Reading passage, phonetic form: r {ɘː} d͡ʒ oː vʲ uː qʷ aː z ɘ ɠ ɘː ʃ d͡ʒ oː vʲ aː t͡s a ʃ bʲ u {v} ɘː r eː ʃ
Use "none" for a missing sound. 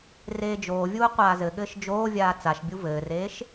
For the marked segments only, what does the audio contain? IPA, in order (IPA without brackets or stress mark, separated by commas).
eː, v